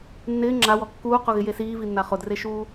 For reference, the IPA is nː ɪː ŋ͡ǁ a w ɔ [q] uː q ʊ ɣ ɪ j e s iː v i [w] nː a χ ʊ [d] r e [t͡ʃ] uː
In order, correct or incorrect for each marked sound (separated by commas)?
incorrect, incorrect, correct, incorrect